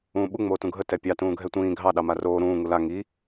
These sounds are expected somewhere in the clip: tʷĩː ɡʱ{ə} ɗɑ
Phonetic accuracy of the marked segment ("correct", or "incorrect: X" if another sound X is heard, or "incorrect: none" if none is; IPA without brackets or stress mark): incorrect: ɑ